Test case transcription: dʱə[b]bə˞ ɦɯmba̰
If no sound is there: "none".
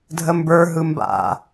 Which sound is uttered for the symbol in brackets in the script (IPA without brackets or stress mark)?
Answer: m